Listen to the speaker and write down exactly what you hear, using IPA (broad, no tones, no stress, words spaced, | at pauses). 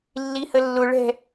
lːihəlːʊ ɭɛ̤